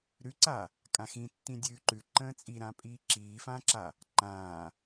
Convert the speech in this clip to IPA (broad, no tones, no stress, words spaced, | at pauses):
ɾʉǀa | kʼãxĩtːĩ dʲʉːǃʉ ǃə̃ːt͡sʼiɾãːpʼiː ǁiːfãːǁa | ǃãː